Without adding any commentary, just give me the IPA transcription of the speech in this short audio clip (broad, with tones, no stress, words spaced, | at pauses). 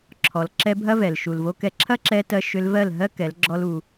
ǁʰɔ˨lǁɛ˧bʱɐ˦vɛ˨l ʃu˨lvo˧kɛ˧ ǁʰɐ˦ǁɛ˧tɜ˧ ʃʏ˧lvɜ˦˨lɦɜ˦ kɛ˨˦lɡ͡ǁɔ˦lu˧